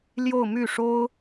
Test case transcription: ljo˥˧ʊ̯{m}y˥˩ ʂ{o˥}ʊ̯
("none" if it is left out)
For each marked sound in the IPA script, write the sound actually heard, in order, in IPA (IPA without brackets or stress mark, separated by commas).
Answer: m, o˥